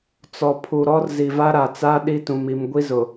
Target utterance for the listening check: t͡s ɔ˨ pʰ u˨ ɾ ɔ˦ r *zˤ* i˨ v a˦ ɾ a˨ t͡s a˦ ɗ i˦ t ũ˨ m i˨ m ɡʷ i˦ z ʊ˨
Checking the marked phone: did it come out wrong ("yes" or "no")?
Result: yes